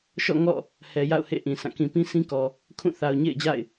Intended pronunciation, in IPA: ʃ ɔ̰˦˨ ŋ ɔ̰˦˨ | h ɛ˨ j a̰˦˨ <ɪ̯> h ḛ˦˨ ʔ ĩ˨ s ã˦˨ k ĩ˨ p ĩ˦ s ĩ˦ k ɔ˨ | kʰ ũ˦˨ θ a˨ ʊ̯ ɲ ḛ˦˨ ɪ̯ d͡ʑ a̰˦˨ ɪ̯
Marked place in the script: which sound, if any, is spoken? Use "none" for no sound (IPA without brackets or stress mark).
ʊ̯